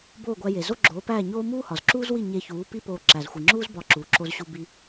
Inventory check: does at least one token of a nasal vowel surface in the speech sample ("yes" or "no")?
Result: no